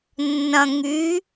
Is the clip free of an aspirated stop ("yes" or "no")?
yes